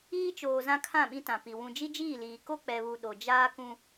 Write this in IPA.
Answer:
iː˦t͡ʃoː˨ zã˦kʰã˦˨ɓĩ˦tã˨ pi˨ wũ˨d͡ʒi˦d͡ʒiː˦˨liː˨ ko˦k͡pɛ˨βu˨ ɗo˨ d͡ʒaː˦kũ˦

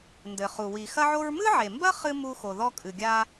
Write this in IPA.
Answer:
ndɘ˩χu˩ wi˩ xɐ˥ʕo˥ɹ mɨ˥ʕe˩mbɐ˥ χɨ˥ mu˥xo˩ ðɔ˥kʼɨ˩ɡʲa˥

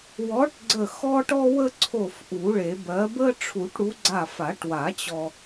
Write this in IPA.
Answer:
wɔ˨˥ʈɡ͡ǀə˧˩ xɔ˧ʈɔ˧wə˧ ǀʰo˧˩f ʔu˨˩˦ɭe˨˩˦bɜ˨˥ bə˥ ʈ͡ʂʰu˨˩˦ʈɽu˨˥ ɡ͡ǀa˧˩fa˨˩˦ʈwa˨˩˦ t͡ɕɔ˧

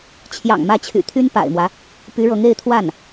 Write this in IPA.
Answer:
t͡ɕʰjɑ̰˨˩ŋmä˧˥t͡ɕʰy̰˨˩ t̪ʰy˥npa̰˨˩ɪ̯mwä˦ | py˧˥ɻɤ˧˥ŋe˥˧ɪ̯t̪ʰwa˥˩n

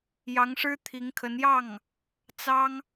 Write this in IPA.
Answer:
jɑ˧˥ŋʂɻ̩˥ t̪ʰi˧˥ŋkʰə˧˥n jɑ˥˩ŋ | t͡sɑ˥ŋ

